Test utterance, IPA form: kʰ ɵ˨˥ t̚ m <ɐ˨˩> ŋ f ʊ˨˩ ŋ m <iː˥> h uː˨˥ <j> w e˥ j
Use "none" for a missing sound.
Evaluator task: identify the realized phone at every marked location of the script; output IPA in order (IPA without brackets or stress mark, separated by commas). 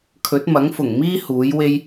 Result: ɐ˨˥, iː˥, j